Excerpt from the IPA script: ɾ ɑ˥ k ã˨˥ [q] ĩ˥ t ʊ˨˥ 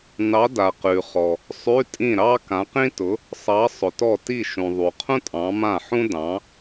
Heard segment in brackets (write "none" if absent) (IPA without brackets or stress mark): q